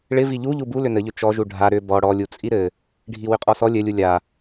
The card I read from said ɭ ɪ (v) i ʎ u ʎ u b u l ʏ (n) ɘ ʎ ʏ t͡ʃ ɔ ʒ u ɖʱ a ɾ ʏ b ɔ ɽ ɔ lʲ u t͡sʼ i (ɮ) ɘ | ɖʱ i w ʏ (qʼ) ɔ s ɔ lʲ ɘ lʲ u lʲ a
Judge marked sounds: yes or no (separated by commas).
yes, yes, no, yes